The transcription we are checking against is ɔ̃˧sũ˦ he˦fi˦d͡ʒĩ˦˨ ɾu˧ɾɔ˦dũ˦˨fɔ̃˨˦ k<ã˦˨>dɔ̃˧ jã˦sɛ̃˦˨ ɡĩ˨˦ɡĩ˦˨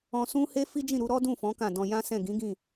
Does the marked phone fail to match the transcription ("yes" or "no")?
no